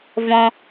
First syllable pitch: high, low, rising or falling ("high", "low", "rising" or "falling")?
high